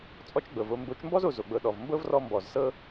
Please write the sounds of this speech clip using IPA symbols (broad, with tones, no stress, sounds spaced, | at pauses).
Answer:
t͡sʼ ɔ˦ t͡ʃ ɡ͡b ɤ˨ v o˧ m b o˨˦ t͡ʃ m b ɔ˦ z o˨ z o˨ ɡ͡b ɤ˨ ɗ ɔ˨ v m b ɤ˦ v r ɔ˧ m b ɔ˨ z s ɤ˦